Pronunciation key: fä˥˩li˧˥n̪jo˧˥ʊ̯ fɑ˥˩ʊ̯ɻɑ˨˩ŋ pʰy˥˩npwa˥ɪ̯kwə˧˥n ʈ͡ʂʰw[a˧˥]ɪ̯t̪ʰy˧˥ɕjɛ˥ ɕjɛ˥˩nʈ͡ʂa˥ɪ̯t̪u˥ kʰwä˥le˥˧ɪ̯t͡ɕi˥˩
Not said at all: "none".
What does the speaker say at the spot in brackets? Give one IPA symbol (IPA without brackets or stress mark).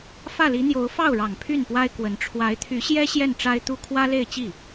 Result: a˧˥